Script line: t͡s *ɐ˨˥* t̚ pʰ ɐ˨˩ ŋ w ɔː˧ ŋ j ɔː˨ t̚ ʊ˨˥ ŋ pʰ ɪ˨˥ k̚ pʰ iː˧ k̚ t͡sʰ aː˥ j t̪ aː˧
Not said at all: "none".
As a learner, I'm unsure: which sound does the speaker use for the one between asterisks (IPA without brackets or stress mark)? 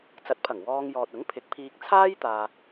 ɐ˨˥